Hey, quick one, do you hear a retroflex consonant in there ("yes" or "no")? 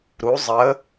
no